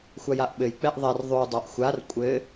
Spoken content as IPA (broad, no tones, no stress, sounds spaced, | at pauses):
xʷ a j a ʔ ɓ ɘ j k͡p ɛ ʔ ðˤ ɛ r ðˤ ʉ dˤ a ʔ xʷ a r kʷʼ ɘ